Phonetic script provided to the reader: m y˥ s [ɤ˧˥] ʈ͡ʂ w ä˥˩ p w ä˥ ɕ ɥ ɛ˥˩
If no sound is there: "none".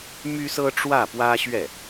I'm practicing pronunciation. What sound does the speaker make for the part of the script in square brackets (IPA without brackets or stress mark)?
ɤ˥